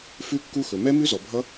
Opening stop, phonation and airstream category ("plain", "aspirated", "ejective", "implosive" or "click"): plain